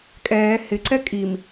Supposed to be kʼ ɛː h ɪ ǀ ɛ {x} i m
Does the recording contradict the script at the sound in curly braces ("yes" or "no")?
yes